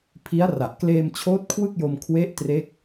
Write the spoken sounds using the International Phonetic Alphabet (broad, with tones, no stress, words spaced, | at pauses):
pʰi˦˥a̯ra˨˩ʔ kleː˧mt͡ɕʰoː˦˥t̚ kʰwɯ˥˩k̚jo˧mkʰwe˦˥ʔ tre˦˥k̚